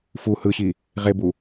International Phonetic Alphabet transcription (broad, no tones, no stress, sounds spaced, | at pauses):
f u h ɯ ɕ i | ʁ e b u